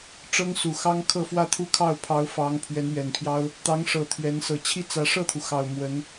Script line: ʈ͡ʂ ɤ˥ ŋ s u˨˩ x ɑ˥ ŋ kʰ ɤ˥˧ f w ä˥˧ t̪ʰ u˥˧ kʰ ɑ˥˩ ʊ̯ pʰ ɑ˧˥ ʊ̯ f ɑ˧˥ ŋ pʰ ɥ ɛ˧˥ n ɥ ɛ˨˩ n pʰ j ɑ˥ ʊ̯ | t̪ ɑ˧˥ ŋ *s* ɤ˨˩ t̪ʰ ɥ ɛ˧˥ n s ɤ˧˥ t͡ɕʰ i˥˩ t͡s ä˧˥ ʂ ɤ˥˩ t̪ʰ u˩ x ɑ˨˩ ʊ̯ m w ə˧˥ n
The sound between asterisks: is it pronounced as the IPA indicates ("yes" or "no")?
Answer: no